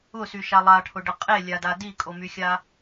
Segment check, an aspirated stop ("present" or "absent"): present